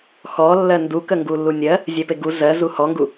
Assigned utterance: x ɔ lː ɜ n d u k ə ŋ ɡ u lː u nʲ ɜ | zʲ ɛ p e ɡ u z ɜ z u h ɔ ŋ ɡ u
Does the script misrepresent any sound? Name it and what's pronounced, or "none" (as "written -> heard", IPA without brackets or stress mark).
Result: none